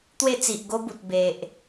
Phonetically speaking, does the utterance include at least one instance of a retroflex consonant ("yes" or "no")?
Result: no